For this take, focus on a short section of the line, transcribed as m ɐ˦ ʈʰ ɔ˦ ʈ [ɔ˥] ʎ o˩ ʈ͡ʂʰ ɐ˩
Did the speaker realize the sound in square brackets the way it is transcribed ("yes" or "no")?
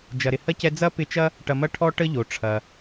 no